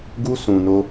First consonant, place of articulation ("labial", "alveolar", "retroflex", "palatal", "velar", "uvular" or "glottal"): velar